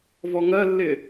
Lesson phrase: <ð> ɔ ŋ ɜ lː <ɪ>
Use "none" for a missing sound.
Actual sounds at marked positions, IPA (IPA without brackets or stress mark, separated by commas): v, ɪ